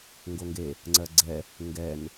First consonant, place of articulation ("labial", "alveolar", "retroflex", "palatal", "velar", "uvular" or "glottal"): velar